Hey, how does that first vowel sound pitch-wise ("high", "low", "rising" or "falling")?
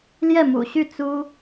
falling